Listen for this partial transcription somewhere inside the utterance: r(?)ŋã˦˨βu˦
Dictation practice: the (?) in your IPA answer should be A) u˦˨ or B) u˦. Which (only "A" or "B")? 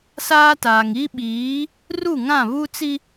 A